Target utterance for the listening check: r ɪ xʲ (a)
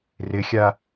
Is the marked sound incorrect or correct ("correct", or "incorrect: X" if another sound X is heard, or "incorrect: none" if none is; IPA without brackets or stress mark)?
correct